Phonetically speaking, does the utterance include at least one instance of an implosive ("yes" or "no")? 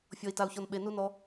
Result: yes